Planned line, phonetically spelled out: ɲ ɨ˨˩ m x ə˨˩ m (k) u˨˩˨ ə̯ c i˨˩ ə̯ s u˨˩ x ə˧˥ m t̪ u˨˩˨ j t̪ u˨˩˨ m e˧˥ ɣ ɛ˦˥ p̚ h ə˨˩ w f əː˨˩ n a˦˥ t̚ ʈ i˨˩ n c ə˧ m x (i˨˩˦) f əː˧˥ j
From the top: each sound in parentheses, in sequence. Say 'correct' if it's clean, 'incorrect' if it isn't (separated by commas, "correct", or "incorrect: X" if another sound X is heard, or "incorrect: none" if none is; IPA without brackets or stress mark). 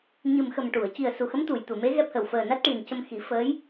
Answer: incorrect: ʈ, correct